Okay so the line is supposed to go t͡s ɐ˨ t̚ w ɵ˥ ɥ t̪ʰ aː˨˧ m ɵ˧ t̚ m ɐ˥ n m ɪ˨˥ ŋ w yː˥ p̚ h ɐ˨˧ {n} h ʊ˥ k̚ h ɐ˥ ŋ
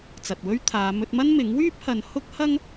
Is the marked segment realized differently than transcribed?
no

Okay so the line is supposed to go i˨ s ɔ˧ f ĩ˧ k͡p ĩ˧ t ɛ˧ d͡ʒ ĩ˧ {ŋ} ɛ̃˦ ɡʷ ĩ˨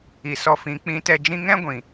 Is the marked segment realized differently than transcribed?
no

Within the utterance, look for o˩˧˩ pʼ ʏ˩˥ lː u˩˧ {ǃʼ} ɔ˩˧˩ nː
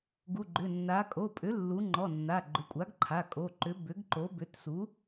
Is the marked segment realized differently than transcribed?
yes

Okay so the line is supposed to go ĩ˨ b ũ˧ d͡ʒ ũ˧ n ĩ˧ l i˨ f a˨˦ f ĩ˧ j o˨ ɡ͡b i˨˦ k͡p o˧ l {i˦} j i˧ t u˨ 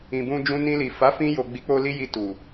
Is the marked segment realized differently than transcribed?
no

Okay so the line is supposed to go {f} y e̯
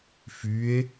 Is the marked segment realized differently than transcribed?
no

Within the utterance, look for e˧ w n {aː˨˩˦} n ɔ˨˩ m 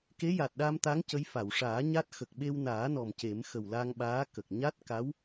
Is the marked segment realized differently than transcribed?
no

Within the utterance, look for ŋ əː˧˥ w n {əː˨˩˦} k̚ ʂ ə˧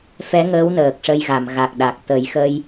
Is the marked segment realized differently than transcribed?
yes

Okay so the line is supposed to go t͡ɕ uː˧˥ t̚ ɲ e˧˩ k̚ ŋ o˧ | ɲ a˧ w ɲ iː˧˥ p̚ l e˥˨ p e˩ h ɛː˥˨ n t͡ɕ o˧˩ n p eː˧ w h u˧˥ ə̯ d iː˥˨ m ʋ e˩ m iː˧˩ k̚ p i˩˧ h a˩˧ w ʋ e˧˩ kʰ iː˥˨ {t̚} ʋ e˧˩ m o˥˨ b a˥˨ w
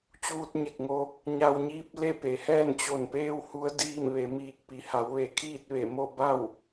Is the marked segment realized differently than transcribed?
no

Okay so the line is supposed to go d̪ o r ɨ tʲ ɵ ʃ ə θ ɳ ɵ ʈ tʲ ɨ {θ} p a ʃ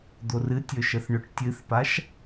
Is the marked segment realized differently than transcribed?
no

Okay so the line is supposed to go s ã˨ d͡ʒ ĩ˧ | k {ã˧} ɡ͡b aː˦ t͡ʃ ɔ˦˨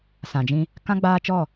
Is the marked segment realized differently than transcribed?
yes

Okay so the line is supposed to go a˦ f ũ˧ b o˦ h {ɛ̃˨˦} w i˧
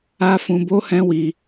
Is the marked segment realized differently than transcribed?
yes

